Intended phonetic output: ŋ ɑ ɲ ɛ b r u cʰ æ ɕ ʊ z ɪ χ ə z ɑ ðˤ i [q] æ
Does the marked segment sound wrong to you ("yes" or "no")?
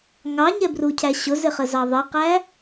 no